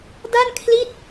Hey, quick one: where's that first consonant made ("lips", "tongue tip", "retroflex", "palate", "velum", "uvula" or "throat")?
tongue tip